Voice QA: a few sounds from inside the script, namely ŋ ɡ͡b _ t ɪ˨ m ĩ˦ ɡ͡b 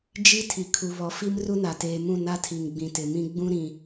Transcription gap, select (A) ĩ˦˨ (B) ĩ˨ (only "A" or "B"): B